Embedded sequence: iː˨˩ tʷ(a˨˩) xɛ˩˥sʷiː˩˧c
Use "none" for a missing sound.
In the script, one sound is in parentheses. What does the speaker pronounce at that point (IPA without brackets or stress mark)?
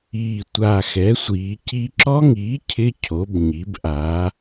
a˨˩